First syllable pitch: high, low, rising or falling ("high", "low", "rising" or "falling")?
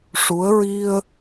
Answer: rising